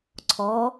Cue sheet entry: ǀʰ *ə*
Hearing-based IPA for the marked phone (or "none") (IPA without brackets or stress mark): ɔ